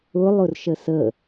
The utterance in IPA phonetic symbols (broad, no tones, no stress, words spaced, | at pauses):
ʊlˠʊrʃə sə